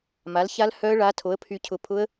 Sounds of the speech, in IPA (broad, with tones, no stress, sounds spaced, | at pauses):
m a˨˥ l ç a˦˥ l h œ˦˥ ə̯ ɭ a˨˥ tʰ o˨˥ ə̯ pʰ y˧ cʰ ʊ˧ pʰ ʊ˦˥ ə̯